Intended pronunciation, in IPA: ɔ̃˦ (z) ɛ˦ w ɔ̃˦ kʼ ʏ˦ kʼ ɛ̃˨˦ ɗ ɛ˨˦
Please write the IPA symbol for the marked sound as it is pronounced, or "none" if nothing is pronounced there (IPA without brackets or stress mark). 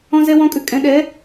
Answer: z